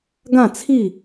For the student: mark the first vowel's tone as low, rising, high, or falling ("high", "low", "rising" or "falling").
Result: falling